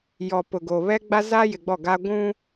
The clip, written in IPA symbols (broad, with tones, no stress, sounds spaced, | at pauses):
j ɔ˨ p ʊ˨ ɡ o˨ β ɛ˦ ɡ͡b a˦ z a˦ j ɪ˨ ɡ͡b ɔ˦˨ ɡ a˦ ɡʷ ũ˦